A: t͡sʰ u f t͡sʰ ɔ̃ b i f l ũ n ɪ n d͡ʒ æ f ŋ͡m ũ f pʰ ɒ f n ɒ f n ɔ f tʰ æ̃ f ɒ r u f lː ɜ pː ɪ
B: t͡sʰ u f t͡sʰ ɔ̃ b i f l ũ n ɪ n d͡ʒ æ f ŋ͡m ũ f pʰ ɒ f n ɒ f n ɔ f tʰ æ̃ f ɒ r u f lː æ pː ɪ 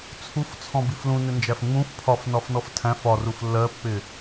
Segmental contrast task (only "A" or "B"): A